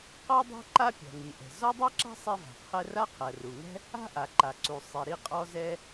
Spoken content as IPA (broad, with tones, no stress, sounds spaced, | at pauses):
q ɔ˥ dˤ ɛ̤˥ ǃ a˥ pʲ ɔ̤˩ ŋ i˩ ʔ ɛ̤˩ z ɔ˥ dˤ i˥ ǁ a̤˥ sˤ ɛ˥ v a̤˩ qʰ ɛ˥ r a˥ qʰ ɜ˩ r u˩ ŋ ɛ̤˥ | a̤˥ ʔ a˩ ǃ a˩ ǀ u˩ sˤ i˩ ɾ i˥ qʼ ɔ˥ z ɛ˥